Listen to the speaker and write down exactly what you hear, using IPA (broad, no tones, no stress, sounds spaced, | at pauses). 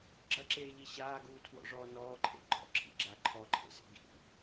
ɡ͡ǁ ɐ ǁ eː ʎ i ɕ aː ɡ uː tʰ w ɔ̰ ʐ ɔː n ɔː ǃʰ ḛ ɡ͡ǃ ɔ̰ ǁʰ ḭ ɡ͡ǁ a ǃʰ ɔ ǃʰ ḛ s ḛ ɡ ḭ